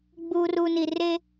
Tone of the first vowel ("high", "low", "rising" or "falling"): low